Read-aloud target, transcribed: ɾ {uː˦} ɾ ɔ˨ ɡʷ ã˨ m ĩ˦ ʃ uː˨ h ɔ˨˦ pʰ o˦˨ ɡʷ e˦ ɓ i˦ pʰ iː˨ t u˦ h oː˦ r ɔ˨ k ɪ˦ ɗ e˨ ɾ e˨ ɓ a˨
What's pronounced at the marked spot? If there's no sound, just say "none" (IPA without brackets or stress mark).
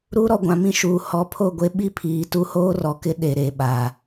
u˦